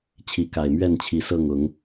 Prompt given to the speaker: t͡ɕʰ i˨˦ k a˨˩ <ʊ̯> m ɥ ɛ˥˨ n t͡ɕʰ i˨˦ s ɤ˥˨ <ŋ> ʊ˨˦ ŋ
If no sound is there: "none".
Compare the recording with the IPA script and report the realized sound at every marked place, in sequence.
ɪ̯, ŋ

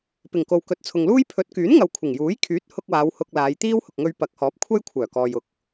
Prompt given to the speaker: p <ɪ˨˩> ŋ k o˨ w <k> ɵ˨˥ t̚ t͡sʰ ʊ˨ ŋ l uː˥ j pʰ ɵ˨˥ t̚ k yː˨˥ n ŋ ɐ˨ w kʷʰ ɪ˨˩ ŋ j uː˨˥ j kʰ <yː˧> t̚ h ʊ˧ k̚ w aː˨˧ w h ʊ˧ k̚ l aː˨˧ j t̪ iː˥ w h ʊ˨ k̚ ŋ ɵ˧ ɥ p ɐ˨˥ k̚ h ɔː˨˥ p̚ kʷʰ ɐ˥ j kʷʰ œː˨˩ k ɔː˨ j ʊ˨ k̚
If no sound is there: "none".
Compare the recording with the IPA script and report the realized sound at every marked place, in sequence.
ɪ˨˩, k, yː˨˥

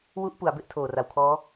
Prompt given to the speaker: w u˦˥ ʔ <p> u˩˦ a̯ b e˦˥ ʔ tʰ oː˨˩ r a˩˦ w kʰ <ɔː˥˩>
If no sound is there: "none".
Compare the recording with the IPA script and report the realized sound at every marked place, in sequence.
p, ɔː˦˥

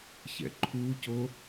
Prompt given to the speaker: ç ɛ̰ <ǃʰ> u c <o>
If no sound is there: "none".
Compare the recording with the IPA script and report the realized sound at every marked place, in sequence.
ǃʰ, o

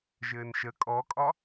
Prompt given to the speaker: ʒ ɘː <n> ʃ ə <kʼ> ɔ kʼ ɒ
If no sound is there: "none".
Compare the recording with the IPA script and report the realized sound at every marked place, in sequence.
n, kʼ

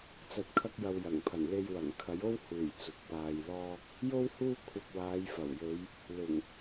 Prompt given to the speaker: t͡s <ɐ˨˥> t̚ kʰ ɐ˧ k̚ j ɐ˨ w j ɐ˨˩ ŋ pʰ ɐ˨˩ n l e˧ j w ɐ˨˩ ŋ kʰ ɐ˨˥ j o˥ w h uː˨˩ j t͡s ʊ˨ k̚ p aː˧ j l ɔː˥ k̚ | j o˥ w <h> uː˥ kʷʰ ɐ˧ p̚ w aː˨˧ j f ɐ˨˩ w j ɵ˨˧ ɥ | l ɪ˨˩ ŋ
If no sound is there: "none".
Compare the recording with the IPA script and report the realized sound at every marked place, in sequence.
ɐ˨˥, h

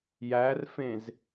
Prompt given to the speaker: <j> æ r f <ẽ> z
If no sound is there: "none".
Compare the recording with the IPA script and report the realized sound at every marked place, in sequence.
j, ẽ

